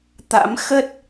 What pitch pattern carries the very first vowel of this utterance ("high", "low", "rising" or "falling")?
rising